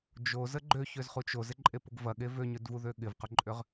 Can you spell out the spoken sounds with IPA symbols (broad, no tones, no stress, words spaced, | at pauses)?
d͡ʒozə ɡ͡ǃøçøzχut͡ʃ ozɪǃʼepʊɡ vɐɠe vøɲʏdvuðø ɠɪvqʊǃʼʏʁ